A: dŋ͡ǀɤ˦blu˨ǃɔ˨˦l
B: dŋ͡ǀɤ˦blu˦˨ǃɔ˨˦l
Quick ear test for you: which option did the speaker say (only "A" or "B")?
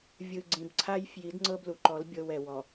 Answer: A